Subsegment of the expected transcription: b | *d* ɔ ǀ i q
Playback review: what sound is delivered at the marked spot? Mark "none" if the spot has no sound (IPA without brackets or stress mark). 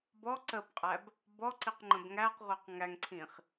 b